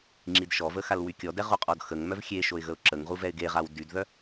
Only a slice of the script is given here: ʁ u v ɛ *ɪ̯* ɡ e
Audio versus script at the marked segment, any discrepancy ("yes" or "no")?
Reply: no